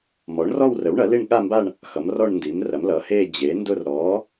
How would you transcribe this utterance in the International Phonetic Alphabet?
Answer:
mɔ˩˥ɳrɔ˥˧wrə˩˥wɳɐ˩˥ li˥˧ɳɠa˥˧mba˥˧ɳ | xʌ˩˥mrɔ˥˧ɳndi˩˥mrɐ˩˥m lʌ˩˥he˥˧ d͡ʑe˩˥ndʊ˥˧r ɾɔ˩˥

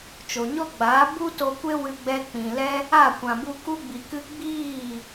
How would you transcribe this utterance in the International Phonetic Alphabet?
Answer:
t͡ʃo˨ɲɔ˦ɡ͡baː˨˦ bu˦to˧kʷe˦ wɨ˦ɡ͡bɛ˦ k͡pĩ˨lɛ˦ | a˦˨kʷã˨bu˧ ku˧ɡ͡bi˨ kɨ˧ ɡ͡biː˦˨

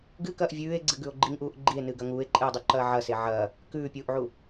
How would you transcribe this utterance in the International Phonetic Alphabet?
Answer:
ɡɨkɐːʔ vʲʉːe̯ɡ͡ǀɨɡʉo̯ ɡ͡ǃiŋʔuːʔ ɡ͡ǃie̯nɨːɡɐ ŋuːe̯ǃʼɨːdˤʉǃɐː ʕɐse ʕɐː | kʉːpʲuːʔʕu

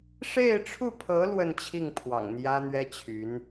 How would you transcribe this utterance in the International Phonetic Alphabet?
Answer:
ʂe˥˧ɪ̯ʈ͡ʂʰu˥˩pʰɤ˧˥ lwə˥˧nt͡ɕʰi˥˩ŋpʰwɑ̰˨˩ŋ n̪jä˥n̪ɥɛ˥t͡ɕʰy˧˥n

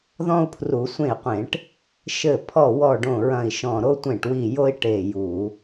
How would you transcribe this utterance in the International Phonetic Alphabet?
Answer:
ðɔ̃˦u̯pʰru˧˩˧ sʷẽ˧˩i̯qʷẽ˧˩˧ʈ | ʃɘ˧˩pʰɔ˧˩wɔ˧˩ ɖõ˧˩ɹɐ̃˧˩i̯ ʃɔ̃˧˩ ɾo˦tʷẽ˧˩ʈwi˧˩ jo˦i̯ ʈe˧˩ju˧˩˧

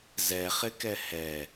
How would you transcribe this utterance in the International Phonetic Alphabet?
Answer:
zɛχɪkɛ hɛ

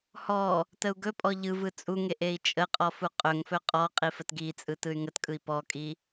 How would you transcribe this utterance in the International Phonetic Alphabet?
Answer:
hɔ | təu̯ɡɵpʼɔ ʎɯ vɯt͡sʼuŋeʔ ei̯t͡ʃʼəqʼɔ fuqʼɵŋfɵ qʼɔ qʼifətɡit͡sʼɯ tɯy̯ŋətkʼɯi̯ pɔkʼi

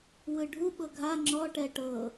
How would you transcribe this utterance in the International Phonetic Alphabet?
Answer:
wɯɖʱu ɓɤɡʱa ŋ͡ǁɔʈɛ ʈɤ

